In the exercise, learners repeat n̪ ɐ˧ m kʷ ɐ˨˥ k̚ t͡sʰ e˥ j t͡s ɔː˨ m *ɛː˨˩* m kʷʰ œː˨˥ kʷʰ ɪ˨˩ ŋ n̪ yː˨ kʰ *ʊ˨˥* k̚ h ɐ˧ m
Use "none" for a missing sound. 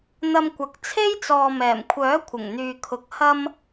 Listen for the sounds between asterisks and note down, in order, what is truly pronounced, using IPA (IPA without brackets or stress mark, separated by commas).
ɛː˨˩, ʊ˨˥